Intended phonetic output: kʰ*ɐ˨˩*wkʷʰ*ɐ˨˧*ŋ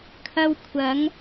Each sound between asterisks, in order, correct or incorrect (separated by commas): incorrect, correct